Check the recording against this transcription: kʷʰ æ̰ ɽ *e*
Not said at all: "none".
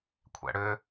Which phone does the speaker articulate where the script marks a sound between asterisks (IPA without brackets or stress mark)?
ø